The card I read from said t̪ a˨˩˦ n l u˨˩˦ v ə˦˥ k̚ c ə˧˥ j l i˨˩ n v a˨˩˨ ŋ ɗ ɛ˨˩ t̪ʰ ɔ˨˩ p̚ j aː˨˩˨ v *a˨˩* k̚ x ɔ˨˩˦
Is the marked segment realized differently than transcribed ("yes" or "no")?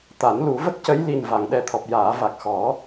no